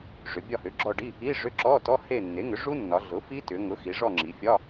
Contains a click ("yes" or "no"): yes